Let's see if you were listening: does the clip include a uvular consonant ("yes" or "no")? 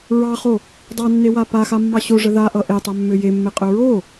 yes